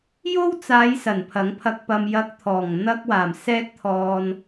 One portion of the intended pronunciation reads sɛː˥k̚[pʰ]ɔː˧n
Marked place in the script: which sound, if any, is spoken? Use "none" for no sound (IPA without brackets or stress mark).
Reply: t̪ʰ